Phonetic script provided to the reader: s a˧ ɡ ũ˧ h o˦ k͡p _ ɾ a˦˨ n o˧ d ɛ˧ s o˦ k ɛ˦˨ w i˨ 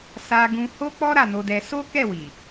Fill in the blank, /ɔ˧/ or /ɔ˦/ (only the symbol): ɔ˦